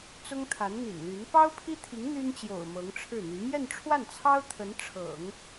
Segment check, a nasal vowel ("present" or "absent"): absent